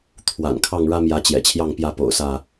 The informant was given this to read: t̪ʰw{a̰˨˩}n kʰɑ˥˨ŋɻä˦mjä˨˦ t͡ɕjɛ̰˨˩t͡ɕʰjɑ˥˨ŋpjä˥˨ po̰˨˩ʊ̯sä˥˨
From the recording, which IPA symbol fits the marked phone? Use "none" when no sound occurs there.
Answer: a̰˨˩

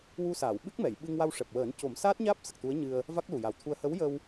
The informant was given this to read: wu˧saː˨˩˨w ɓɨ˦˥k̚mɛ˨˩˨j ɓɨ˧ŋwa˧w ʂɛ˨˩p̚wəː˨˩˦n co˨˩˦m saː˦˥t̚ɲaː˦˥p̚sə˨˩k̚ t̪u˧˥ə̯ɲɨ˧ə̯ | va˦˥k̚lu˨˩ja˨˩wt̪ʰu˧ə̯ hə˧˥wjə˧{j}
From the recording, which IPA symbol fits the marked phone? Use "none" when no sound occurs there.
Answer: w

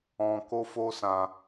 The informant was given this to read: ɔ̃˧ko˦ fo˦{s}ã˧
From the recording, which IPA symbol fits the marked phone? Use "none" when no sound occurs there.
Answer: s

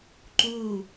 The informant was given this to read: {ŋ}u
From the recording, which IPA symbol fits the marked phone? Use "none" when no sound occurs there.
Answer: ǃ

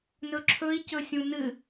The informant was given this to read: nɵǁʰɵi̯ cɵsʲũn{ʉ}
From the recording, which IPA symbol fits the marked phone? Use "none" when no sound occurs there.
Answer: ɨ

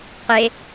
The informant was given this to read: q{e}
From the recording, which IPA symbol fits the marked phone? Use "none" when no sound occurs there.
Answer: e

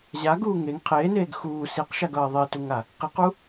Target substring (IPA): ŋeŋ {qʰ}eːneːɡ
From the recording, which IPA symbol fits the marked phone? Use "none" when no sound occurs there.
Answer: qʰ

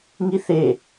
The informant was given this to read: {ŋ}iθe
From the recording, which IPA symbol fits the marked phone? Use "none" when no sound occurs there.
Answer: ŋ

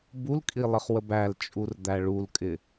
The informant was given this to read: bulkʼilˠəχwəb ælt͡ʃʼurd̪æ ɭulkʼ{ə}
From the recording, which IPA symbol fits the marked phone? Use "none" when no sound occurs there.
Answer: ɪ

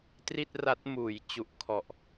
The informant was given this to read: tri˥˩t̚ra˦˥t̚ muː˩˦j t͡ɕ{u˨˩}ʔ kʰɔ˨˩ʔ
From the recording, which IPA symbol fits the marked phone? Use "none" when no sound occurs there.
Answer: u˨˩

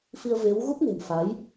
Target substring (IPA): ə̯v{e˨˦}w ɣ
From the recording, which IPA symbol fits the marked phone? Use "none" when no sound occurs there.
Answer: e˨˦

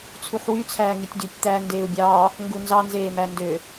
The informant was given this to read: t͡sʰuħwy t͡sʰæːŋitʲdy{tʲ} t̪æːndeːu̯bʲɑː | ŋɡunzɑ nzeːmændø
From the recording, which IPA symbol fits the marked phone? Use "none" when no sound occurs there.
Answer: tʲ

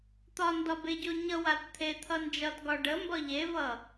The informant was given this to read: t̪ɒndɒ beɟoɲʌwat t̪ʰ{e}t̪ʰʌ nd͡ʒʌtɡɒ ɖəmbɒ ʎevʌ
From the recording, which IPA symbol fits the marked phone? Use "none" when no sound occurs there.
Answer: e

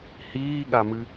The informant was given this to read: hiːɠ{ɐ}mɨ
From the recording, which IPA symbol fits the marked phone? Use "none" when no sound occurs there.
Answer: a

